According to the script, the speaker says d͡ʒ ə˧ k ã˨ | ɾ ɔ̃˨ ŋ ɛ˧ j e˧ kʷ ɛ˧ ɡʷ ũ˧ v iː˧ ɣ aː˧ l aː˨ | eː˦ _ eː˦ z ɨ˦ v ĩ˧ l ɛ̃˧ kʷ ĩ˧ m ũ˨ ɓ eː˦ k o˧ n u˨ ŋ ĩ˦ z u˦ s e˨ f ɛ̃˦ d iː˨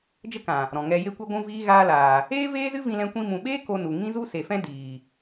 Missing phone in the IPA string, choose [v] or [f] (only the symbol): v